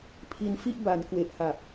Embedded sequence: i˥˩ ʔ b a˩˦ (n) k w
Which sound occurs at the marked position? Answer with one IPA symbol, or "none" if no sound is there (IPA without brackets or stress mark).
n